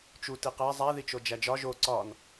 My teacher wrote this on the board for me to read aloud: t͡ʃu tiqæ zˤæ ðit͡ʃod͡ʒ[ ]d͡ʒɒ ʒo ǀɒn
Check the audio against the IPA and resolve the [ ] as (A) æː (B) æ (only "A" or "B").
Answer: B